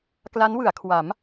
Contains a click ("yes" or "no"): no